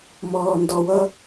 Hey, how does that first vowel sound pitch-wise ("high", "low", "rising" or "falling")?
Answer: low